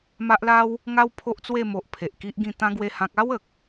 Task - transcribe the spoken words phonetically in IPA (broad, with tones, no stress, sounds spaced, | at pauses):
m a˦ ʔ l a˦ w | ŋ a˦ w pʰ o˦ ʔ t͡s w e˥˧ m o˨ ʔ pʰ e˨ ʔ k i˦ ʔ ɡ ĩ˥˧ t̪ ã˦ ɡ w e˦ h ã˦ k̚ a˦ w ə˨ k̚